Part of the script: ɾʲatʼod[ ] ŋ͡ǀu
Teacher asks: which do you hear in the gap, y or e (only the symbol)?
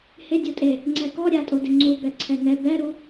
e